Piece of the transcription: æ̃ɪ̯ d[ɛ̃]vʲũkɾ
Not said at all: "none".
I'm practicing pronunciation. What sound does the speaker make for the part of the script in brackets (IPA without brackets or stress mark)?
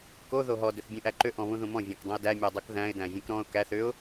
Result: æ̃